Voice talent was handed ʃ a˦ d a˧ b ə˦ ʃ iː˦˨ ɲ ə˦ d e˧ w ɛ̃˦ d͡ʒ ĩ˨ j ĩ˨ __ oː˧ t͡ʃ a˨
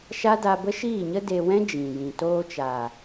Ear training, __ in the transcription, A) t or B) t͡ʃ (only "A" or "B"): A